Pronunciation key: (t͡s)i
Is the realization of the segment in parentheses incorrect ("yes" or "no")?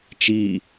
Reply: yes